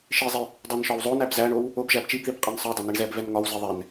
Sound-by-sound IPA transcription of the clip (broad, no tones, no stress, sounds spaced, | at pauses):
ʃ i zˤ i | dˤ ə˞ n ʃ ɒ w zˤ o n æ b z æ ɳ o w | o b ʒ æ b t͡ʃ i b ð i b qʼ ɛ n sˤ ə˞ dˤ o n i ɳ z ɛ b v ɛ n ŋ ɒ w z i ðˤ ɛ n